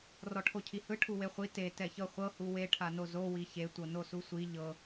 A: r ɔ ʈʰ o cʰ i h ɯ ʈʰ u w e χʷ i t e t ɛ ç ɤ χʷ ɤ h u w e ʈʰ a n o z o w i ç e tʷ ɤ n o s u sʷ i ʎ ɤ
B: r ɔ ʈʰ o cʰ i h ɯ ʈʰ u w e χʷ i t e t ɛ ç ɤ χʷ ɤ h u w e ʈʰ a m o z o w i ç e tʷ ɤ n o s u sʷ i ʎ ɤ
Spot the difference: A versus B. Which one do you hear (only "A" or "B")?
A